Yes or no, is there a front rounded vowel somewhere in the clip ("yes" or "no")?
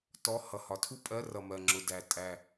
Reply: no